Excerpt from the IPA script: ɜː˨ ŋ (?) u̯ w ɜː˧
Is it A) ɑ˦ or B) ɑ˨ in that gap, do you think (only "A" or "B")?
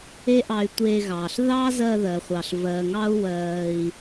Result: A